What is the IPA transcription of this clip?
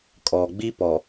kʼ ɔ˨ ɡ͡b i˦ p ɔ˨

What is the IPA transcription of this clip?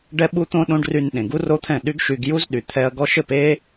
ɖ ɛ˦ ɓ u˦ t̪ õ˦ ɗ õ˦ ɖ r y˧ n ɗ ẽ˨ ɡ u˦ r o˦ t̪ʰ ɛ̃˦˨ ɗ y˦ ɡ ʃ y˧ ɡ j u˦ z ɗ y˨ t̪ʰ ɛ˧ ɐ̯ ɡ ɔ˧ ʃ ɘ˦˨ p e˦

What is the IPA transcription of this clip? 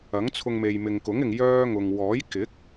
ɐ˨˥ ŋ t͡sʰ ʊ˧ ŋ m e˨ j m ɪ˨ ŋ k ʊ˨˥ ŋ ɪ˨ ŋ j œː˥ ŋ ʊ˨ ŋ w ɔː˨˥ j k ɪ˨˥ k̚

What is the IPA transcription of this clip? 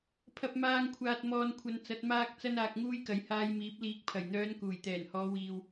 pʰ ɐ˨ p̚ m aː˧ ŋ kʷʰ aː˨ t̚ m ɔː˨ n kʷʰ ɐ˨˧ n t͡s ɐ˨˥ t̚ m aː˧ k̚ t͡s ɐ˥ n aː˧ k̚ ŋ uː˥ j k ɐ˨˧ j h aː˧ j m iː˨˥ p̚ l iː˨˥ k̚ pʰ ɐ˨˩ j n̪ œː˨˧ n k uː˨˩ j t̪ ɛː˨˩ n h ɔː˨˧ w iː˨ w

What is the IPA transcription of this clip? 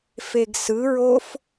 f e ɡ s ɯ ɹ o f

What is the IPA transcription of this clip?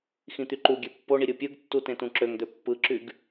x ĩ t̪ y ǃ u ɡʲ ø pː o ɳ i ɾʲ ɯ pʲ ɯ ɡ tː u t ẽ t ũ ǁ ø ŋ d̪ ø pː ɯ ǁ y ɡ

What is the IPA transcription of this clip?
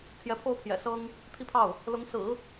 t̪ʰ j ɛ˧˥ pʰ o˥ ʊ̯ pʰ j ɛ̰˨˩ s ɤ˥ ŋ | t̪ʰ i˥˧ pʰ ɑ˥˩ ʊ̯ | l ʊ˧˥ ŋ s ɹ̩˨˩˦

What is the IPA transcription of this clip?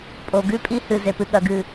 pʼ o˨ ɡ ʉ˦ pʼ i˦ h ɨ˨ z e˨ p ɨ˨ ɠ ɐ˨ ɡ ɨ˨

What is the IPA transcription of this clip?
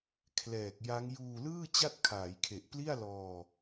kʰ l ɛː˨˩ k̚ j a˦˥ ŋ j uː˧ l ɯː˥˩ t͡ɕ a˥˩ t̚ kʰ aː˩˦ j kʰ e˨˩ ʔ p l i˥˩ a̯ l ɔː˧

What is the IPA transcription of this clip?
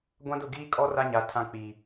ɡʷ ã˦ d ʊ˦˨ ɡ iː˦ kʼ ɔ˦ r a˦ ɲ a˨ tʰ ã˦ k͡p i˨

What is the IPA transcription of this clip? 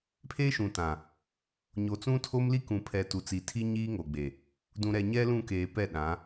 pʰ eː˦ ʃ ũ˨ t ã˨ | ɲ o˨ t͡s ũ˦ tʰ o˦ m l i˦ k ũ˨ pʰ ɛ˨ t u˨ t͡s i˨ tʰ i˦ ɲ iː˦ ŋ o˨ ɡ͡b e˨ | d ũ˨ ɾ ɛ˨ ɲ ɛ˦ l ũ˦˨ k eː˨ p ɛ˦˨ ɗ ã˨˦

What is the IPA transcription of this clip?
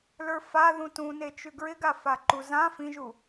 l ə˞ f a ð ũ t ũ n e t͡ʃ ʉ ɡ ɹ ɪ ɡ a f a ǃ u z ã f ĩ ʒ u

